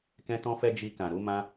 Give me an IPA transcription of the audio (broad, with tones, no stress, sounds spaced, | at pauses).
k ɛ̃˧ t ɔ̃˧ f ɛ˧ d͡ʒ i˧ k ã˨ ɾ u˨˦ m ã˦